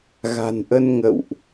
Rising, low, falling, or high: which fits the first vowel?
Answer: low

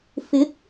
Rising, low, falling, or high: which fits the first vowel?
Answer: rising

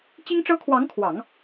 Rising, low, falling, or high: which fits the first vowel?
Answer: high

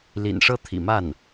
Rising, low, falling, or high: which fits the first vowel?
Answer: low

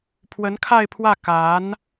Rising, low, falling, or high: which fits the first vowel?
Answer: rising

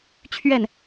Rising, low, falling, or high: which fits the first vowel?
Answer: falling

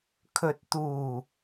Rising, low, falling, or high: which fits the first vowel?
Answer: low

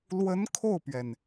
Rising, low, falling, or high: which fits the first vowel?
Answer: rising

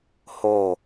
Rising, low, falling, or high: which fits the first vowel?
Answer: falling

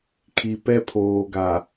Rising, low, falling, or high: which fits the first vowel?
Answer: low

